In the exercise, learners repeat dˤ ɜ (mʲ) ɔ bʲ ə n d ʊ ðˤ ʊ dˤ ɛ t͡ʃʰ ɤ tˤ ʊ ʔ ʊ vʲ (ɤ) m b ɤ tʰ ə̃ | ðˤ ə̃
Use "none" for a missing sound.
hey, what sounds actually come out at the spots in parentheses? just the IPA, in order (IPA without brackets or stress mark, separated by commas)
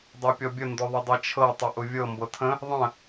pʲ, ɤ